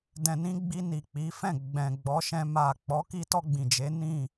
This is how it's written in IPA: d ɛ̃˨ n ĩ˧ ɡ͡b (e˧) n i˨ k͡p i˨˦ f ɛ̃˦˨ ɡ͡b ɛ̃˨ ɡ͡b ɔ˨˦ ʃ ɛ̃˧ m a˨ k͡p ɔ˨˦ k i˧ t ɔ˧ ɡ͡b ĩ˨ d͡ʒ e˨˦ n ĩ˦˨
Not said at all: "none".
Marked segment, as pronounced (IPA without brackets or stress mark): i˧